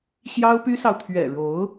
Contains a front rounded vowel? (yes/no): yes